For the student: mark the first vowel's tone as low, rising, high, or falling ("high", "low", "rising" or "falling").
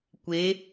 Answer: rising